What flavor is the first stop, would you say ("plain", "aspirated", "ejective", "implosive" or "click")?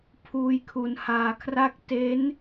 aspirated